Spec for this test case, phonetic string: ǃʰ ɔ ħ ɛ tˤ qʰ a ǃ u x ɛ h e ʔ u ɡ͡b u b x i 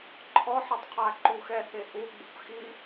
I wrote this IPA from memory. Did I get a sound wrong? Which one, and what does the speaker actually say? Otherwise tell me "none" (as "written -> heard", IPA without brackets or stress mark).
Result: b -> p